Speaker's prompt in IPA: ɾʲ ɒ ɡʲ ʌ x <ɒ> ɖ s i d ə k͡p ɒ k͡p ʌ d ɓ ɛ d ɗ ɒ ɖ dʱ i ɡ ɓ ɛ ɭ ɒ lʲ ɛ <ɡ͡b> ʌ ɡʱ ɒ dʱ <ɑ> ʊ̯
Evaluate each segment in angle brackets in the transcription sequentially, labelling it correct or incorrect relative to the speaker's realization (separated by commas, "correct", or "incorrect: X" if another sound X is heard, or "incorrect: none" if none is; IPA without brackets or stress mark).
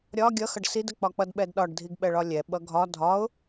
incorrect: ʌ, incorrect: ɓ, incorrect: ɒ